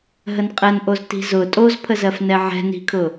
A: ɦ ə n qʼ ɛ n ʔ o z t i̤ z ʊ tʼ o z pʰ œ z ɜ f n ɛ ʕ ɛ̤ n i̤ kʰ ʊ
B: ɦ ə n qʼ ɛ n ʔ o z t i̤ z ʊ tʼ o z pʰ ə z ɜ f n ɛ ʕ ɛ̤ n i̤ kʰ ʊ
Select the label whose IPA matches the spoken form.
B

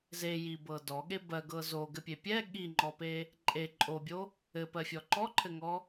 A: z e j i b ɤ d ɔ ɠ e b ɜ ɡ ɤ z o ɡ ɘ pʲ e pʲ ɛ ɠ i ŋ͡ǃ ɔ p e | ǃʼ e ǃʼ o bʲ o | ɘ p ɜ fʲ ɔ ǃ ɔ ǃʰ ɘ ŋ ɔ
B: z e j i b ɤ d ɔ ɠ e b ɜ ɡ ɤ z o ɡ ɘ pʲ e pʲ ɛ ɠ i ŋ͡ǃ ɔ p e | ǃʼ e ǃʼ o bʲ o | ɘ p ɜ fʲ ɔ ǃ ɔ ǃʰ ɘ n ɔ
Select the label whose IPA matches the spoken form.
A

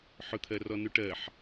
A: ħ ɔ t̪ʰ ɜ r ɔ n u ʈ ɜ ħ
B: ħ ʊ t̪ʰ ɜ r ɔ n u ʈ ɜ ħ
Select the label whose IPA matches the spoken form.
B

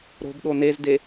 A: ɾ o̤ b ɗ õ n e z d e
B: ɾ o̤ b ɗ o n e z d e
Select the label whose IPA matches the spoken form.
B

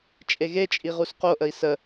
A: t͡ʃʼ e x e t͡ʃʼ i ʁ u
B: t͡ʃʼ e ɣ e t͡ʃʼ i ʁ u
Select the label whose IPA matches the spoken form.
B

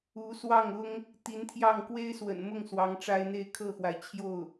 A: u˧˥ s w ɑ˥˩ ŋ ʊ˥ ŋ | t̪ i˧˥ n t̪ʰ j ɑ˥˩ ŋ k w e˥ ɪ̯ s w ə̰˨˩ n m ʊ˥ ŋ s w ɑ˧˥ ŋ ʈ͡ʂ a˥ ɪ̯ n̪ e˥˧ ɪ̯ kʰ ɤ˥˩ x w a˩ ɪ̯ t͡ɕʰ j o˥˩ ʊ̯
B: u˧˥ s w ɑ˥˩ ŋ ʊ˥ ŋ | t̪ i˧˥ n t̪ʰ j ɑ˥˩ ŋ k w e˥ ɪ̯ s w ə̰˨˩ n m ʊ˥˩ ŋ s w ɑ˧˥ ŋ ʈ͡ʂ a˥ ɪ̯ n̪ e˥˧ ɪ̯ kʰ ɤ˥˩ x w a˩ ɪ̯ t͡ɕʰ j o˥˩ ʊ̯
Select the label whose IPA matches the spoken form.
B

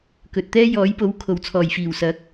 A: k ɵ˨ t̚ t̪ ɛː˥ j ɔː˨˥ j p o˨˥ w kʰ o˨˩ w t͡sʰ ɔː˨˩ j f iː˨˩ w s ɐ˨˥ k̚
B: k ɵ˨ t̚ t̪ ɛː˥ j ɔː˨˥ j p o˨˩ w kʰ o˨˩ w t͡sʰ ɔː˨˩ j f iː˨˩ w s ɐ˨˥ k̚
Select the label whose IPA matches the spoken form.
A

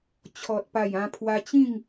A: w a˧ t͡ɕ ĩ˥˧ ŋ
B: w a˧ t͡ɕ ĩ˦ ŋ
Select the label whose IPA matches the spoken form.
A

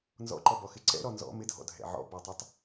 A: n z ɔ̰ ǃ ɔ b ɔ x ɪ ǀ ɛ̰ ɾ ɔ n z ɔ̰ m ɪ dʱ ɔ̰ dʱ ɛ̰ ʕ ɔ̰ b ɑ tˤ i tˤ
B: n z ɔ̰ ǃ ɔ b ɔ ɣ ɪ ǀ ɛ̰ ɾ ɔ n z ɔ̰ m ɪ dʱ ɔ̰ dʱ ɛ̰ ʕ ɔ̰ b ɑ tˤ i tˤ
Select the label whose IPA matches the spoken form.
A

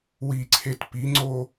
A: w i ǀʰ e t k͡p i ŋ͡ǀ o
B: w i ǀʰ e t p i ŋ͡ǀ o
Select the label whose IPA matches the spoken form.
B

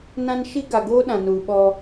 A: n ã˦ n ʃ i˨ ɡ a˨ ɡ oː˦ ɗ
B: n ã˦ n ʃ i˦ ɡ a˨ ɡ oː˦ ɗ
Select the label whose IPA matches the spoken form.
B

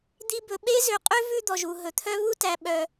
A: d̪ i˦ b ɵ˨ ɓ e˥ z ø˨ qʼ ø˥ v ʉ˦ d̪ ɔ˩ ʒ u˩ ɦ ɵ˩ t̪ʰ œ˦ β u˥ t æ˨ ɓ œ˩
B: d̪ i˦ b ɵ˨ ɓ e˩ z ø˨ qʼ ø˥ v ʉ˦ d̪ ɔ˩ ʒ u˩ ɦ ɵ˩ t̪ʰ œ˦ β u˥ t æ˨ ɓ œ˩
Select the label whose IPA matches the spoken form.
A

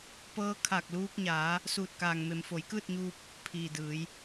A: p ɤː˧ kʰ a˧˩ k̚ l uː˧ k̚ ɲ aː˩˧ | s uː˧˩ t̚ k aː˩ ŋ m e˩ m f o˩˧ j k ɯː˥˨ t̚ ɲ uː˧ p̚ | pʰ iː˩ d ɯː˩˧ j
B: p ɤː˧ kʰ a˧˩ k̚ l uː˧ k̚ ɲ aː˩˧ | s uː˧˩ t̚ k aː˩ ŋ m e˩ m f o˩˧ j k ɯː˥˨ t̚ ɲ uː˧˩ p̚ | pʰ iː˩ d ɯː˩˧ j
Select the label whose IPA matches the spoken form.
A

